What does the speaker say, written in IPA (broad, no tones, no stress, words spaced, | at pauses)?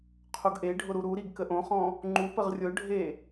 qʰoɡʔeɖʱʊ ɾuɾuɾiɡ kəʔõχɔ̃ | ŋ͡ǃupəʁ rʲʊɖʱe